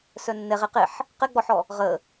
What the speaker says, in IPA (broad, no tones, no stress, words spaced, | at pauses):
sœnːɛ ʁeqeħ | qɛɡ͡bɔħɔ | ʁə